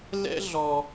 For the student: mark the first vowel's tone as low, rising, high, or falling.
high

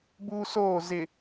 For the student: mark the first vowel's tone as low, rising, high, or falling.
high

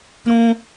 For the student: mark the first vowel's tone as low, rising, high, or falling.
high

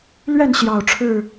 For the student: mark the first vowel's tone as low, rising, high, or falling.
falling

